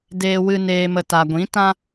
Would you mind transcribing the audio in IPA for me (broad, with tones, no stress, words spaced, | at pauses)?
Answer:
deː˦wɨ˦ neː˧mə˧ ta˨ɡʷĩ˨˦tã˦